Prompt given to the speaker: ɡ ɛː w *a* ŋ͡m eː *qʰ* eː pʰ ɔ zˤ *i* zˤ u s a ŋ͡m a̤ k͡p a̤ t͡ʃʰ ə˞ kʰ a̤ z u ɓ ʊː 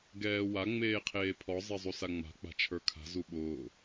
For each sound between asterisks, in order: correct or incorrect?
correct, correct, incorrect

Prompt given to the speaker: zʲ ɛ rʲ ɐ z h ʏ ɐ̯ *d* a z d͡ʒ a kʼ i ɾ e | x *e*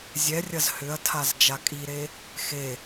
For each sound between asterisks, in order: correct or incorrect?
incorrect, correct

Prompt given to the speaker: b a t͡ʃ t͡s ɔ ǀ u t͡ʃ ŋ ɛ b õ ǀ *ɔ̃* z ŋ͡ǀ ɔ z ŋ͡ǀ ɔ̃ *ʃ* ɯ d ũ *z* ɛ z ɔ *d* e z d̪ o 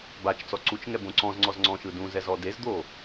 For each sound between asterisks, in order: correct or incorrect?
correct, correct, correct, correct

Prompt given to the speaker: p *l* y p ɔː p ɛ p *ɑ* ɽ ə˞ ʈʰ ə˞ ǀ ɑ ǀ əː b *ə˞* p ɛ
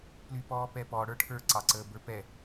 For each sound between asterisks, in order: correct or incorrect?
correct, incorrect, correct

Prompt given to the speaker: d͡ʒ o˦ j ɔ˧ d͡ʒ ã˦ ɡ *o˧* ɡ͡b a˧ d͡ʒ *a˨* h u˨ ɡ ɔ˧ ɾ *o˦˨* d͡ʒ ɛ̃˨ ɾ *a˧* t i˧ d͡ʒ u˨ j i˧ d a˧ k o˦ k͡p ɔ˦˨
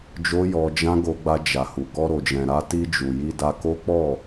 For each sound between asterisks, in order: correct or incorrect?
correct, correct, incorrect, correct

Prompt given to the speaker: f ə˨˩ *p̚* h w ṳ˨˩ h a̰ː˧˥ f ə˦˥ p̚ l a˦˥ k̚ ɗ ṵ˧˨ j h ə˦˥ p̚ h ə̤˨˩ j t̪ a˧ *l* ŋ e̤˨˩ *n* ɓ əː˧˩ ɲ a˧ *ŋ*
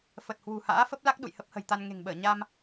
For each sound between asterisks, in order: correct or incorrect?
incorrect, incorrect, incorrect, incorrect

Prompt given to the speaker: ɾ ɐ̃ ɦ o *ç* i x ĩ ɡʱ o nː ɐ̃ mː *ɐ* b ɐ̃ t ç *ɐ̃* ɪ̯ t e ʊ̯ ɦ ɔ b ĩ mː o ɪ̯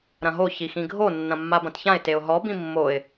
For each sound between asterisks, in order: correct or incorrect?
correct, incorrect, incorrect

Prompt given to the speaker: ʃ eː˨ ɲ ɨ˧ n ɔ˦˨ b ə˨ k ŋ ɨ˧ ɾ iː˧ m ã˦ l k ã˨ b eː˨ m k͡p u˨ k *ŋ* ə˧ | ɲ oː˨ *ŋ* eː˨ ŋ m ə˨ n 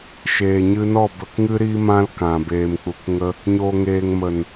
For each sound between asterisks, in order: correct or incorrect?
correct, correct

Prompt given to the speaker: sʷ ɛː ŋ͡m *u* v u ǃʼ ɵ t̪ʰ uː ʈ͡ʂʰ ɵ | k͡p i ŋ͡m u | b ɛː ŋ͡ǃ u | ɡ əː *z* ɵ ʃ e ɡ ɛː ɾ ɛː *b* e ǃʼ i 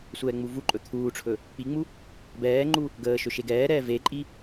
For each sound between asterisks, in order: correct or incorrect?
correct, incorrect, incorrect

